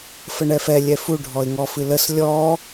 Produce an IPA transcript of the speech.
f ə ɳ ɛ f ɛ lʲ ɛ f u ɖʱ ɔ ɪ̯ ŋ ɔ f ɨ l ə s lʲ ɔ

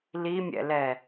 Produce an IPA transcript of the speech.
l i mʲ ɛ̰ l ɛ

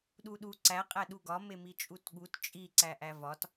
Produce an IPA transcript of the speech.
ɗ u ɗ u ǀ æ qʼ æ ɗ u ɡ ɒ m e m i t͡ʃʼ u t ɠ u t t͡ʃʼ i ǀ æ ʔ æ v ɒ t

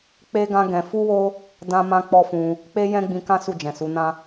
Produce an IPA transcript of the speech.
k͡p e˦ ɡ ã˦ ɡ ɛ̃˧ f u˦ w o˦ | d ã˦ m ã˦ k͡p ɔ˦ f ũ˧ | k͡p e˦ j ɛ̃˦ ɡ͡b ĩ˧ k ã˦ s u˦˨ d͡ʒ ɛ̃˨ s u˨˦ n ã˦

